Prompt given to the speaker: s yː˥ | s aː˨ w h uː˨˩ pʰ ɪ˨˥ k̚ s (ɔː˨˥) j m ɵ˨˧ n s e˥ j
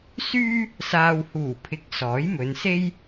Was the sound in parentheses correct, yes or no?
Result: yes